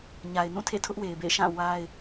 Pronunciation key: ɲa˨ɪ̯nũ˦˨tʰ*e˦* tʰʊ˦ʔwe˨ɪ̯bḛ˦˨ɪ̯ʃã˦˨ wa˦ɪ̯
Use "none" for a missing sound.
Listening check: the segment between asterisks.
ḛ˦˨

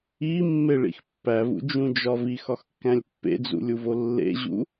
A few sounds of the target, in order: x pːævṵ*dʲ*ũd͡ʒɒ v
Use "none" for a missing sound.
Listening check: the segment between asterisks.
d͡ʒ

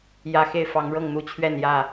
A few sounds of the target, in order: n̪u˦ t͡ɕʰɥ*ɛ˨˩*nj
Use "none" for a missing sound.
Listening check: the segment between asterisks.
ɛ˥˨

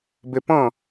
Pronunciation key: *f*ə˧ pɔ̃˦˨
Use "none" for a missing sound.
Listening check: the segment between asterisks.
b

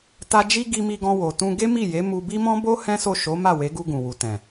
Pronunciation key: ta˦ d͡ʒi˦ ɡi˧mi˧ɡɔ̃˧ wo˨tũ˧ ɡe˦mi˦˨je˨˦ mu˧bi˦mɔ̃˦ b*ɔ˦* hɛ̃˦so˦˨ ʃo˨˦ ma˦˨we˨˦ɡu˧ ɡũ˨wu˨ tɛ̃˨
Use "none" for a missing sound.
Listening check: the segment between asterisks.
o˦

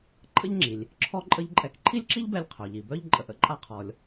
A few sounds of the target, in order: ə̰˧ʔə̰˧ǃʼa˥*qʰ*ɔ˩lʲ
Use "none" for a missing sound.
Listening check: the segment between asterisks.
qʰ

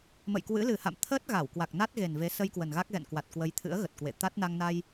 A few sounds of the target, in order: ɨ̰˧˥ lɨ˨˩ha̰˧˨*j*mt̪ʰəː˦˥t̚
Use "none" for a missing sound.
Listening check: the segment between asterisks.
none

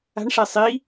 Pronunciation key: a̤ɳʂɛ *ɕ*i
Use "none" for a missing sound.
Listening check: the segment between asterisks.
sˤ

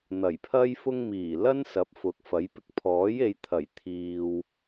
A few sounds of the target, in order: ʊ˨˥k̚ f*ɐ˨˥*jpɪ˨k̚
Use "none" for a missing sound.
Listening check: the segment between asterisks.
ɐ˨˥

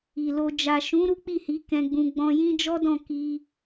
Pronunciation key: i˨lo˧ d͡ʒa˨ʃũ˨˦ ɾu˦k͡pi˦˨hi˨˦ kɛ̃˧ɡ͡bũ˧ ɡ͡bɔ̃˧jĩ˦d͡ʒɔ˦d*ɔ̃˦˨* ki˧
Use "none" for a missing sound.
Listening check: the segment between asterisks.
ɔ̃˦˨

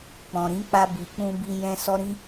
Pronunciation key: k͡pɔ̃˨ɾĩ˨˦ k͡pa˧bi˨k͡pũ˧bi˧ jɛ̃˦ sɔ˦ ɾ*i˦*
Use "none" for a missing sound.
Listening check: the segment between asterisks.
ĩ˦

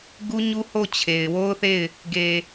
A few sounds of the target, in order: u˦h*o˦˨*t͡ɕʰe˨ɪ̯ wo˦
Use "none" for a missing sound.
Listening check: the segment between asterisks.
o˦˨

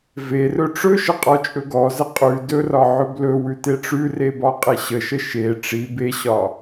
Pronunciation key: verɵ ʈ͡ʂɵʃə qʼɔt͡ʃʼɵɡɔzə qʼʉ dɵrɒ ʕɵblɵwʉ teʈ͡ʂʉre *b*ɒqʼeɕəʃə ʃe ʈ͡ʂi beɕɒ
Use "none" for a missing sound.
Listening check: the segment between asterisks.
b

